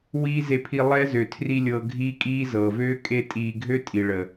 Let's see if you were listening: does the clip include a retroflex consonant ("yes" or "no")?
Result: yes